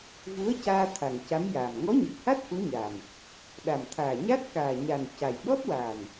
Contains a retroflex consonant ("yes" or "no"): no